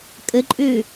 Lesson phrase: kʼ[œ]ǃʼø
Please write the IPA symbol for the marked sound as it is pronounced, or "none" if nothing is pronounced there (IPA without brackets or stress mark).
ə